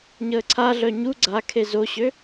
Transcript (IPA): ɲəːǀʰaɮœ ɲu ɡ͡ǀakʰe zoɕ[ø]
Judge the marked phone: correct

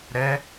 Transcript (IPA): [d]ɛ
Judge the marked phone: incorrect: ɾ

